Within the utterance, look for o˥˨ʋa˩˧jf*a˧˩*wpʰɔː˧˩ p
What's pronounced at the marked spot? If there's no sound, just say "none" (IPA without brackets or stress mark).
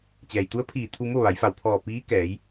a˧˩